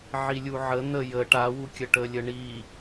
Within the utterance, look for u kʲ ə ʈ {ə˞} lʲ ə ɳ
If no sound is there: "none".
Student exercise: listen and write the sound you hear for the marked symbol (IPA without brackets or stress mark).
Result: ə